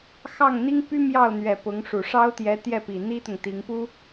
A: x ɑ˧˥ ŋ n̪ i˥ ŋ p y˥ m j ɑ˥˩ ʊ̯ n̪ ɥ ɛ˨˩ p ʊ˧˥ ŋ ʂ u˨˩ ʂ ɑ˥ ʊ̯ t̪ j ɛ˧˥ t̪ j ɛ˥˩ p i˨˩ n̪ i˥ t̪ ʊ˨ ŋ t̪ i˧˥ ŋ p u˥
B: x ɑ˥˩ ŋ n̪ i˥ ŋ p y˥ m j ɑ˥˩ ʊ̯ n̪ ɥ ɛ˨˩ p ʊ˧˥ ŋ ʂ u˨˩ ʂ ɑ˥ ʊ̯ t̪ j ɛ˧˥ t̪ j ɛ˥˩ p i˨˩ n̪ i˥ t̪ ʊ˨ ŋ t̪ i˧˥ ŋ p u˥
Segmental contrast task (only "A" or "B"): B